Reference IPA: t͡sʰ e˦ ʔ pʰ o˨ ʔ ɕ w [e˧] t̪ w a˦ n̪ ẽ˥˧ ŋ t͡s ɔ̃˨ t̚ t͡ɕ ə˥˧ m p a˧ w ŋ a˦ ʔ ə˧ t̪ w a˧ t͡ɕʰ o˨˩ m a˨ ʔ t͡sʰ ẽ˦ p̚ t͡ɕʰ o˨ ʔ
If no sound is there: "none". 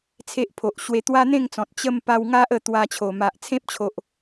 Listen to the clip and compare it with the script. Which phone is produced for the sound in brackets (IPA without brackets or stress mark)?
e˧